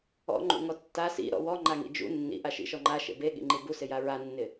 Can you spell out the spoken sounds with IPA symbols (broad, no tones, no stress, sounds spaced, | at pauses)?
ɔ̰ ŋ͡ǃ ṵ ŋ ɔ tː a s ḭ ɾ ɔ̰ w ɔ ŋ͡ǃ a ŋ ḭ d͡ʒ ṵ nː ḭ ʔ a ʃ ḭ ʃ ɔ ŋ͡ǃ a ʃ ḛ b e ɠ ḭ ŋ͡ǃ i b u s ɪ j a ɹ a nː ɪ